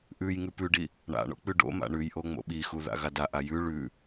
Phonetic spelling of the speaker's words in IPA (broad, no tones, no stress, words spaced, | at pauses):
ʔʉj ŋʉpʉɖi | ɳa̰ɳo̰ k͡pʉɖo̰ma̰ ɳʉjʔo ŋ͡mo̰ɓixu ða̰ɣadaʔa jʉ ɭʉ